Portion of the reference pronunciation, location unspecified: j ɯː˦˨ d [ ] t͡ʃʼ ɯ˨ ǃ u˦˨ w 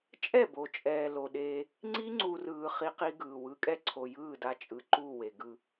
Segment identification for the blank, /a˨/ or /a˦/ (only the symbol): a˦